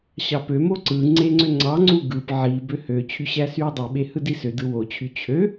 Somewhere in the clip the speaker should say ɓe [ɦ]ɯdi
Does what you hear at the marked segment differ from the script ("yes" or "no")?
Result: yes